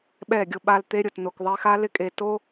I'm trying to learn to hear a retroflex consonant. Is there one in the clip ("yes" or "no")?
no